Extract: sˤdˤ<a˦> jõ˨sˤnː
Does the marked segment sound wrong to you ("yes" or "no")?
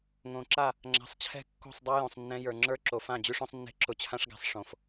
no